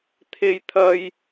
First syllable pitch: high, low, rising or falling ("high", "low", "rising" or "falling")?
high